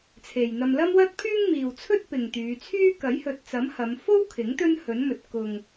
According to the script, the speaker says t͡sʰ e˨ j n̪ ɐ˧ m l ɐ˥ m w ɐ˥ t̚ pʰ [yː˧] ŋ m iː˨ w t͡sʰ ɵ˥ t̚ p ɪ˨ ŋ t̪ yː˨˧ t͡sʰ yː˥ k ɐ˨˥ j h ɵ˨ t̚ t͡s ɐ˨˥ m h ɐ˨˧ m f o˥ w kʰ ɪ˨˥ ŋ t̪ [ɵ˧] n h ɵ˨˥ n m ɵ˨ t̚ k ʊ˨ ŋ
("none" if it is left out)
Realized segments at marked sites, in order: yː˥, ɵ˥

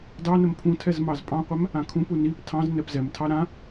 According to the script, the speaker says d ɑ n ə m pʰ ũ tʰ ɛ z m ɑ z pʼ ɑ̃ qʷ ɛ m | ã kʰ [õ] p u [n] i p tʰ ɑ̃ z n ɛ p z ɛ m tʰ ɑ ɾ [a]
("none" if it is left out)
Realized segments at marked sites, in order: ũ, n, ã

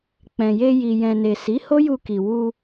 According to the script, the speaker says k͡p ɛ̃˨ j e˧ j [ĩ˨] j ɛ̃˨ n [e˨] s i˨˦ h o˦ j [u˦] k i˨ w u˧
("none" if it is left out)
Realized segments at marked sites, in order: i˨, e˨, u˧

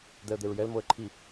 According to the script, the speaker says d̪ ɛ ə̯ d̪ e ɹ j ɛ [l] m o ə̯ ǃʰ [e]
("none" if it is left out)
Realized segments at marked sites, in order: l, i

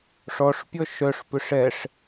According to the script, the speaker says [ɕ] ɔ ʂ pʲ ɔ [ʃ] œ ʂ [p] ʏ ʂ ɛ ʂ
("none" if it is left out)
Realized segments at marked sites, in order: ʂ, ʃ, p

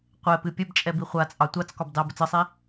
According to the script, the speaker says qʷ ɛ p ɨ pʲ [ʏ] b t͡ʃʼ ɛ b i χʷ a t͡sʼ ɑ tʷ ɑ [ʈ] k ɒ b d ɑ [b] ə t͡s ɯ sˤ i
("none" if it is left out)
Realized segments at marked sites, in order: ə, t͡s, b

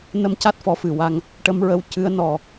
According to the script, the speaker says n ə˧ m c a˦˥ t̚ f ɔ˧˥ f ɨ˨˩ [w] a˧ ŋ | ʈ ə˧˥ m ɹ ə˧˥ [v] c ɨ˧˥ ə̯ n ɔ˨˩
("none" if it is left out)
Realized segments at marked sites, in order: w, w

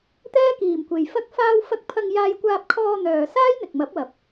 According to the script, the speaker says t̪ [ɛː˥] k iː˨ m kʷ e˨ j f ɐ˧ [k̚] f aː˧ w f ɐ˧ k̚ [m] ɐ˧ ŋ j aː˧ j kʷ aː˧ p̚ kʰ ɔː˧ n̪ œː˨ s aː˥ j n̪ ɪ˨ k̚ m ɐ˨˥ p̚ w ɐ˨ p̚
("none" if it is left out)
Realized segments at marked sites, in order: ɛː˥, k̚, pʰ

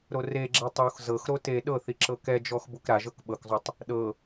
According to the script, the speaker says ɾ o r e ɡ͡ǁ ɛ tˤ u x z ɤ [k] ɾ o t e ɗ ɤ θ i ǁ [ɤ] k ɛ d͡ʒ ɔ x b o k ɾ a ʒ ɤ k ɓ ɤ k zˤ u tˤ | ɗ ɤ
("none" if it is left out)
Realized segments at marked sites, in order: x, ɤ

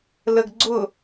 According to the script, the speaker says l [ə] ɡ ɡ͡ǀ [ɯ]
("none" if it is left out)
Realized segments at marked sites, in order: ə, ʊ

